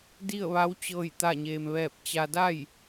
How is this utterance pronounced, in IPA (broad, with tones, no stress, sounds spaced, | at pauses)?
d i˥˨ ə̯ ʋ a˧˥ w t͡ɕ ɤː˥˨ j t̪ a˥˨ ɲ eː˧ m ʋ ɛː˥˨ p̚ t͡ɕ a˧ d a˥˨ j